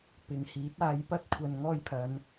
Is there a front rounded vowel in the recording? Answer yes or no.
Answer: no